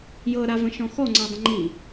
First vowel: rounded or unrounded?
unrounded